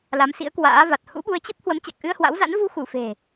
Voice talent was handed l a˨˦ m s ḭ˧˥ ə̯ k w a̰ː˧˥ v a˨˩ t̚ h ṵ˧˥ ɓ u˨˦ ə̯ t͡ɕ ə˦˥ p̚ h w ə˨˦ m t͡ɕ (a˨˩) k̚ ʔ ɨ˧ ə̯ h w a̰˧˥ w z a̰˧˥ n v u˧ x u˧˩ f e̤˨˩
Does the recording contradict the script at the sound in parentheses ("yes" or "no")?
no